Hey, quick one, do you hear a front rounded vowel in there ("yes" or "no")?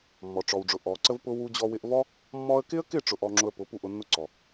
no